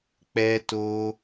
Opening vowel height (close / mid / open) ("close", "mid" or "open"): mid